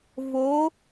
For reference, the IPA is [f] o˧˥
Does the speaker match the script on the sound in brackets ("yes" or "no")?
no